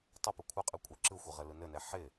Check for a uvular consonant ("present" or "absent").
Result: present